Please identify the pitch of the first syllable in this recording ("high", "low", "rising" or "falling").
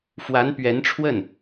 rising